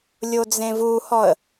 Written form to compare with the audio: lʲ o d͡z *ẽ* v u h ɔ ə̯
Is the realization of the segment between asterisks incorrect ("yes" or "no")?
no